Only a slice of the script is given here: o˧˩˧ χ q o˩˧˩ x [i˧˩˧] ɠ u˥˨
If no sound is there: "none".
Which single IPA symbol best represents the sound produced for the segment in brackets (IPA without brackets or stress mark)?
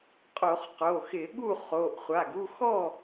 ɪ˧˩˧